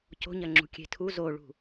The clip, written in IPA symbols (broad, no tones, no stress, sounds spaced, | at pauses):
c o̤ ɲ ɐ ŋ͡ǁ ṳ kʲ e̤ tʰ u z o ɭ ṳ